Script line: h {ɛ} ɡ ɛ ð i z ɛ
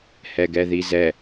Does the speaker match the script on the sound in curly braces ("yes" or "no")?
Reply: yes